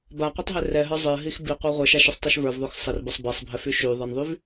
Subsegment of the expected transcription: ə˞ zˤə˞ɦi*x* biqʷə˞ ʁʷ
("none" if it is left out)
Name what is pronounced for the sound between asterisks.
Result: x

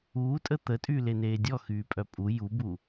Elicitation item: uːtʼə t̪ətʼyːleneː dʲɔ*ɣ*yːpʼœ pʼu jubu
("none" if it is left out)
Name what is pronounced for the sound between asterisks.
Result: x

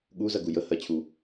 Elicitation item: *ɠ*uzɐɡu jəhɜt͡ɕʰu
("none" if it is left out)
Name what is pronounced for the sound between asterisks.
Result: ɠ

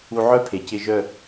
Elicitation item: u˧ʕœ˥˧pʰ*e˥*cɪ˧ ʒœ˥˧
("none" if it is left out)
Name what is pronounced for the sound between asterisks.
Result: e˩˧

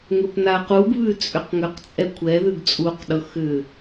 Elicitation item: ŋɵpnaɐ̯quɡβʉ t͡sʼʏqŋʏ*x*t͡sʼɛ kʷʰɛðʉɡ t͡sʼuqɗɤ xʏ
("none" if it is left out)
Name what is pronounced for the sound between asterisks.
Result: q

